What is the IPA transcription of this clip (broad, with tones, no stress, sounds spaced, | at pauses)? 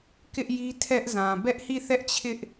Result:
k ɪ˦ ʔ j i˦ tʰ ɛ˦ ʔ z ã˨ b ɛ˦ ʔ h i˦˨ θ ɛ˦ ʔ t͡ɕʰ ɪ˦ ʔ